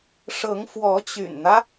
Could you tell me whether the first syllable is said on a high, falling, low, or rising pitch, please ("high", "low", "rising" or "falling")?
rising